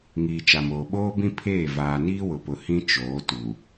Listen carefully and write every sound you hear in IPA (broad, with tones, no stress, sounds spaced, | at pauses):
ŋ iː˨ t͡ʃ a˨ m oː˨ ɓ oː˦ b ĩ˦ pʰ eː˦˨ v aː˨ n iː˦ w ʊ˨ p ʊ˨ h ĩ˦ t͡ʃ oː˨˦ t u˨